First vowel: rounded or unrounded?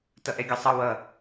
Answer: unrounded